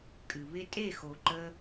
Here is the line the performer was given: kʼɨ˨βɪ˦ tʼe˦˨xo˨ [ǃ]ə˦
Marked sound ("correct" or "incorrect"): correct